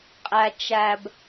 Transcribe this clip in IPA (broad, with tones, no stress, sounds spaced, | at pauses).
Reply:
qʼ æ˧ t͡ʃ æ˧ b